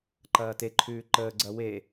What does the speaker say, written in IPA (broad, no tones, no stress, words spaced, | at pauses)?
ǃɐːteǃʰʉː ǃəːɡ͡ǀɐ we